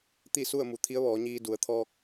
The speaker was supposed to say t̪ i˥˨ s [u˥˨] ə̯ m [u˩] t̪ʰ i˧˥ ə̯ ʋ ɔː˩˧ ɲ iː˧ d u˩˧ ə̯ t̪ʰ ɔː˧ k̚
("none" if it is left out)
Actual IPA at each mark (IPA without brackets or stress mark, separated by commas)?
u˥˨, u˩